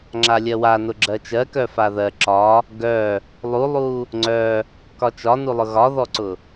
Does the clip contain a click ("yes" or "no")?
yes